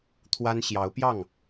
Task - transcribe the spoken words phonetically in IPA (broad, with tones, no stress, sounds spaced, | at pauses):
t̪ʰ w a˥ n ɕ j ɑ˧˥ ʊ̯ p j ɑ˥˩ ŋ